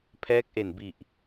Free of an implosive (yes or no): yes